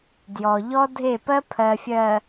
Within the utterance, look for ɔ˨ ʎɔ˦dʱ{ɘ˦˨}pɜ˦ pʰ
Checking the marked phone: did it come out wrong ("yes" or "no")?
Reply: yes